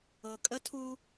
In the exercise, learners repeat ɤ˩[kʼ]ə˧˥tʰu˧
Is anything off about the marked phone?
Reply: no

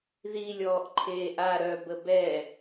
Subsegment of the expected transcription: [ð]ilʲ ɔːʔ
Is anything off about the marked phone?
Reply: no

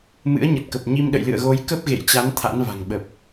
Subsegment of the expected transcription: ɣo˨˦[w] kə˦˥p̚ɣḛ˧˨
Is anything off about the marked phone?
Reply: yes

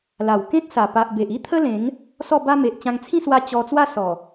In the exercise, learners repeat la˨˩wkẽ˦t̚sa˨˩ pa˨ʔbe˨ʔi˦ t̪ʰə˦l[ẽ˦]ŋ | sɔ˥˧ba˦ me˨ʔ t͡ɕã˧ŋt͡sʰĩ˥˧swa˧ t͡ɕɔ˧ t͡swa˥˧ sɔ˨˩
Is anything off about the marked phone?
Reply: yes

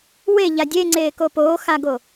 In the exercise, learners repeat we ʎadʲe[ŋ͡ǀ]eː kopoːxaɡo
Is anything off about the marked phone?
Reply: no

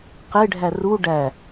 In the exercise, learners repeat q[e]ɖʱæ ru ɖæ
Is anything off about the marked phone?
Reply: no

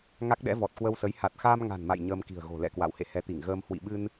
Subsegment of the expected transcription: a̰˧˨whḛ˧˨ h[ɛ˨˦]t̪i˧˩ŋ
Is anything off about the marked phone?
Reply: no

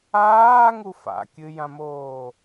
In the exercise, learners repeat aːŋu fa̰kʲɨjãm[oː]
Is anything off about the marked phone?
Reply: no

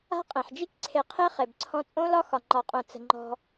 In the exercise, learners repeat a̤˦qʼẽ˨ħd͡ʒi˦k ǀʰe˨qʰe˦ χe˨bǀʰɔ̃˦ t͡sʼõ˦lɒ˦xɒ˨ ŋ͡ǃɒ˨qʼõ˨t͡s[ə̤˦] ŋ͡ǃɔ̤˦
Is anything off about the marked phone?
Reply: yes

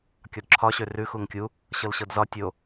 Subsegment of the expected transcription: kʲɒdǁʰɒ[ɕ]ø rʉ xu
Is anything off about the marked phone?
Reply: no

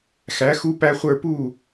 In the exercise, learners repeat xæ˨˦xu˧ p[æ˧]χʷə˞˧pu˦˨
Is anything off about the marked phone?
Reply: no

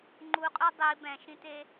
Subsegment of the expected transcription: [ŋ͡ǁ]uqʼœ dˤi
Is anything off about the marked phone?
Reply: yes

